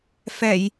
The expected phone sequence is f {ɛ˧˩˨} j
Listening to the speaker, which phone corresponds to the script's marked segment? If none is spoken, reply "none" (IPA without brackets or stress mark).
ɛ˧˩˨